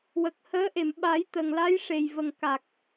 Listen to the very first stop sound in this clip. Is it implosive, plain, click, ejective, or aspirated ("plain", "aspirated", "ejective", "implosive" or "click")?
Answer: plain